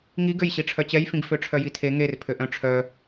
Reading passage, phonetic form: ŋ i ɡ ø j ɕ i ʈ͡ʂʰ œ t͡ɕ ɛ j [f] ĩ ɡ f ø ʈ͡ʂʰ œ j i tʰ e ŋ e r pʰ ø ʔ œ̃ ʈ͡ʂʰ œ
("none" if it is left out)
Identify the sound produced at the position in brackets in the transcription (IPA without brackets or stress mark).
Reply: f